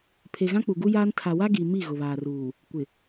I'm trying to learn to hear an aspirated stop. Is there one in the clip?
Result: yes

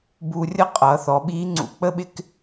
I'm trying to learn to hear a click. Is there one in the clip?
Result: yes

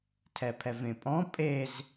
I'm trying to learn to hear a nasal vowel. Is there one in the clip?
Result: yes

